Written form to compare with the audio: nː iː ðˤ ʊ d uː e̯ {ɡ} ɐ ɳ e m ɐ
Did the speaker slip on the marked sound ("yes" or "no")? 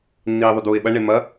yes